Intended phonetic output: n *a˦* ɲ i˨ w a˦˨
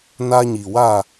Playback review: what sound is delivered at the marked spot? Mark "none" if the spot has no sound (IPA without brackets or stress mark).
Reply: a˦